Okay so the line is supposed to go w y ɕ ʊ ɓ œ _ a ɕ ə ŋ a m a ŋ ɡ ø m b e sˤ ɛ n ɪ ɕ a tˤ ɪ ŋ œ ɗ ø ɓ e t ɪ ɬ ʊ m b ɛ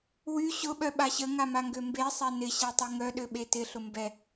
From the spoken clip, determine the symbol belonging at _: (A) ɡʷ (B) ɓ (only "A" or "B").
B